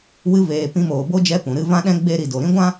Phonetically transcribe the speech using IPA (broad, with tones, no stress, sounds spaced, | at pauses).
w ɨ˧ v eː˨ p ĩ˧ m oː˨ b o˦ d͡ʒ ɛ˧ p ũ˨ ɾ ɨ˧ v ã˦ ɗ ɛ̃˦ ɡ͡b e˧ ɾ i˨ d o˨ ɾ ĩ˦ ɡʷ ã˦